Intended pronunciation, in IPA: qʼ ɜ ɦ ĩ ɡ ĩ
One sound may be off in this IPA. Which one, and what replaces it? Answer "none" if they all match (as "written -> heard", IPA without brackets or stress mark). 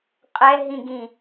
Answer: ɜ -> ɛ